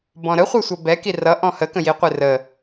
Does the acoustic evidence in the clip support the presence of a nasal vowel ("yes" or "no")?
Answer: yes